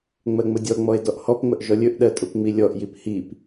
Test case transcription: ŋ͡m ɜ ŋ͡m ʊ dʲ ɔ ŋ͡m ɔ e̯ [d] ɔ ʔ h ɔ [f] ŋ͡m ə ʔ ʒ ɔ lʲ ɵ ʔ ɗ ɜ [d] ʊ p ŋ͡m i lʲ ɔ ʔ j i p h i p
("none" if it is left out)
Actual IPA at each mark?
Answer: d, p, tʼ

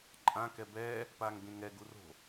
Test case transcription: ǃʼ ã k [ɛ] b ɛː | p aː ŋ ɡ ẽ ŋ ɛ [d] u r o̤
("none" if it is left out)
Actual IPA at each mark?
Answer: ɛ, ɡ

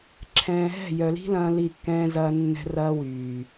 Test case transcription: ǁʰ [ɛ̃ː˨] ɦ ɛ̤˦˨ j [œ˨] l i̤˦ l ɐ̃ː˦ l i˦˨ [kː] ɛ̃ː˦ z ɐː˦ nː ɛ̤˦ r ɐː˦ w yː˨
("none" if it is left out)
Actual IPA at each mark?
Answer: ɛ̃ː˨, œ˨, kː

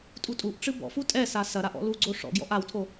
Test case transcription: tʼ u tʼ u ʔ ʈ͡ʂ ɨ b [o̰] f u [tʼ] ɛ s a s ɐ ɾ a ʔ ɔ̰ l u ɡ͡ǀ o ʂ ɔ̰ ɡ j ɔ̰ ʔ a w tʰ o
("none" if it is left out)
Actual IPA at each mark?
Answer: ɔ̰, tʼ

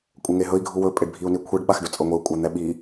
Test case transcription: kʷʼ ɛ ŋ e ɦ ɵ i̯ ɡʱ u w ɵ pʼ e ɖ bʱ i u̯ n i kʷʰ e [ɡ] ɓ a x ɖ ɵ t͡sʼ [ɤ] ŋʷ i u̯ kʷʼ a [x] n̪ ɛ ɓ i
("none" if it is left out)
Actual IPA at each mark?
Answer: ɖ, ɤ, none

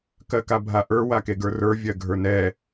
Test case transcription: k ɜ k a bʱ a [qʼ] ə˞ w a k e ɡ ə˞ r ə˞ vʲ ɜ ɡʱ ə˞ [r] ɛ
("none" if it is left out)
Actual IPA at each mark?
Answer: ʔ, n

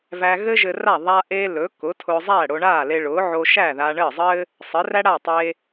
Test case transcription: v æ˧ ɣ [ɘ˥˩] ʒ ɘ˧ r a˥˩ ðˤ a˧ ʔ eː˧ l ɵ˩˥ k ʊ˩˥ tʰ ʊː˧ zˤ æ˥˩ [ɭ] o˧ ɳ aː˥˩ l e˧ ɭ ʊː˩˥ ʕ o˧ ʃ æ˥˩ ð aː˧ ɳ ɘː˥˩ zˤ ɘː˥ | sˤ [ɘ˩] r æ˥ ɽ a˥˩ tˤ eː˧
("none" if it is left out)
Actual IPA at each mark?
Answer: ɘ˥, ɽ, ɘ˩˥

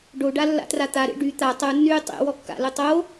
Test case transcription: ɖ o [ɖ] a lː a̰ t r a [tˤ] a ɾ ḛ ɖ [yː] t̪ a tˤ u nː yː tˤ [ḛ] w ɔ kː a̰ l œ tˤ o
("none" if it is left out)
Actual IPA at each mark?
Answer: ɖ, t̪, y, ḛ

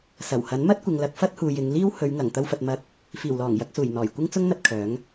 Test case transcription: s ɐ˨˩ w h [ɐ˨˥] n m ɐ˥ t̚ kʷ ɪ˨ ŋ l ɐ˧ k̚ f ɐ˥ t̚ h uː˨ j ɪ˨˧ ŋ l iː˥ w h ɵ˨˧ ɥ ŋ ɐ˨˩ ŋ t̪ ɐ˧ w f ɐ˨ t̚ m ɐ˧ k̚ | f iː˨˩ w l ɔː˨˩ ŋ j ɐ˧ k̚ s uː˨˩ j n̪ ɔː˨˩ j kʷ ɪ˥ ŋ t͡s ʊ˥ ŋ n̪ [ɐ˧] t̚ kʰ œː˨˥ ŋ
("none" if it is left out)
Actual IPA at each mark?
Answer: ɐ˨˥, ɐ˧

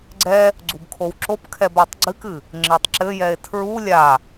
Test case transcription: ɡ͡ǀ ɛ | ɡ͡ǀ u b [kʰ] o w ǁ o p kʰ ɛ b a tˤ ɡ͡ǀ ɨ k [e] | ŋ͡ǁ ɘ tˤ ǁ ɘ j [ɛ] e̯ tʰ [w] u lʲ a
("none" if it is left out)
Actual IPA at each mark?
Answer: kʰ, ɨ, ɛ, ɹ

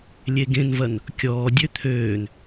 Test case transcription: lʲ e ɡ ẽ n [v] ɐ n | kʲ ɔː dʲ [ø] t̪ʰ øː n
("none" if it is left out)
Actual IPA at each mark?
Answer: v, ø

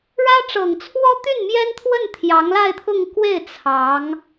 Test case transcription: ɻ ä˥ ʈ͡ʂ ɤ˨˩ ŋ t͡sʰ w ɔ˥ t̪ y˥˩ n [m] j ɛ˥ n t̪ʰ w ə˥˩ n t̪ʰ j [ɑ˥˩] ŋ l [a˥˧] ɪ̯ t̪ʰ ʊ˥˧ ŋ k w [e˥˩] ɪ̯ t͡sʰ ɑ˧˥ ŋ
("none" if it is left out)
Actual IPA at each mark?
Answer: m, ɑ˧˥, a˥˧, e˥˩

